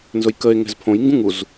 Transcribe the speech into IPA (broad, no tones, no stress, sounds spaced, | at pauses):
n z ʊ j k ə e̯ ŋ ɛ̤ z pʰ õ j ŋ ɡ ũ ŋ u z